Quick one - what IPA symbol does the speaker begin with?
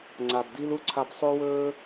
ŋ͡ǀ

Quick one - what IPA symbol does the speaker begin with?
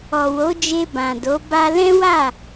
ɔ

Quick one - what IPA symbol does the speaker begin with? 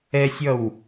ɛ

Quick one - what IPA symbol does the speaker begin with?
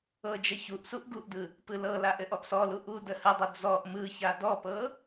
ɤ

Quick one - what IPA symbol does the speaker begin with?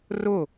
r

